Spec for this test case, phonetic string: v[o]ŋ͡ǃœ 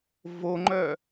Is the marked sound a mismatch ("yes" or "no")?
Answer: no